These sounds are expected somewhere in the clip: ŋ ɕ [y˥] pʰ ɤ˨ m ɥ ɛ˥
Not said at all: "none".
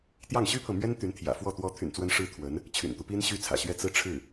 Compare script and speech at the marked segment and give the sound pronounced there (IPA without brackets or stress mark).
y˥